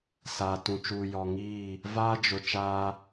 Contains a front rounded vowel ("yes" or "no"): no